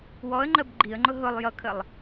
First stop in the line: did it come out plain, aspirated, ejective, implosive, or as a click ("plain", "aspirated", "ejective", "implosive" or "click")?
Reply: click